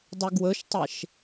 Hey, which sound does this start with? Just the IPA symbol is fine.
dˤ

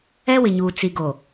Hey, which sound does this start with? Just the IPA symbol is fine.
ɛ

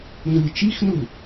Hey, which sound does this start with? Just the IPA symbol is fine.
n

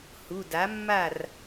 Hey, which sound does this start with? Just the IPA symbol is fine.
h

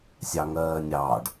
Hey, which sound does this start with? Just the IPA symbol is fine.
sʲ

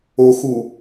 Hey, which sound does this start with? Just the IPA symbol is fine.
o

